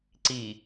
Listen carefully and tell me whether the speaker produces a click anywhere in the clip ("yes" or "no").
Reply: yes